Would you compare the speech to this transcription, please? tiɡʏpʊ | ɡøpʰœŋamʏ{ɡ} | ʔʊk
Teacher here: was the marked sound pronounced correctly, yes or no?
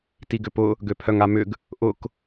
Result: yes